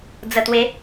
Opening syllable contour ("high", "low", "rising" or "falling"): low